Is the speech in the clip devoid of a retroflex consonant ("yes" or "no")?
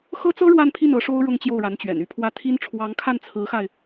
no